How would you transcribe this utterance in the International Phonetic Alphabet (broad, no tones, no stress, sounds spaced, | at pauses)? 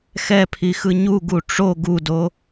x ɛ pʰ i x ɯ ɲ u ɡ u ʈ͡ʂ o ɡ u d o